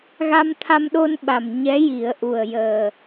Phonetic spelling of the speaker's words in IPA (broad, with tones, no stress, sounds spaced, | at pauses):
ɣ a˧ m t̪ʰ a˧ m ɗ o˧ n ɓ a˨˩ m ɲ ɛ˧˥ j i˨˩˦ ə̯ ʔ u˨˩ ə̯ j əː˨˩